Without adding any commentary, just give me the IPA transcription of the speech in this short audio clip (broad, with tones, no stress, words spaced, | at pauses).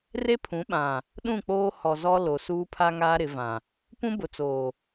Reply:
re˦pʰũ˨˦ɓã˨ | ɗũ˦˨k͡poː˦ hɔ˨zɔ˦ lo˨suː˦pʰa˦ŋaː˦ ɾɪ˨˦vã˨ | pũ˦ bʊ˨t͡soː˨